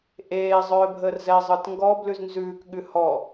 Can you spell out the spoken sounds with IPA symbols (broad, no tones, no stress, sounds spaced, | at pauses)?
ʔ eː zˤ œː bʱ əː r z ɛ zˤ ɯ t ŋ ɡ ɔ b l ʉ z n z ʉː k ɠ ʉ h ɔ